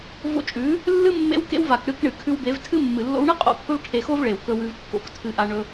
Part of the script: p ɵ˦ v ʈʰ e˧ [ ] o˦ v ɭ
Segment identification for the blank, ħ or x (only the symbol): x